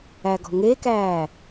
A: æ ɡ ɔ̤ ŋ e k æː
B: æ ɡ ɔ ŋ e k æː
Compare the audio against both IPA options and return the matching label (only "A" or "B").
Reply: A